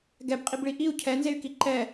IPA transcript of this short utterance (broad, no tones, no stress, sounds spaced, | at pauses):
ɡ ɛ b qʼ i b ɭ i ʔ i u̯ cʰ ɛ n z e y̯ k i ǃ ɛ